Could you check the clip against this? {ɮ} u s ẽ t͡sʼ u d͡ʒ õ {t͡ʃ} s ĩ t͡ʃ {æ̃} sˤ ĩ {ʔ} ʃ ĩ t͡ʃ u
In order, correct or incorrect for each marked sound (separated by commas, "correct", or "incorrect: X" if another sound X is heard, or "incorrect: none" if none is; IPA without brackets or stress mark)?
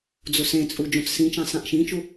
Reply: incorrect: d͡z, incorrect: t͡s, correct, correct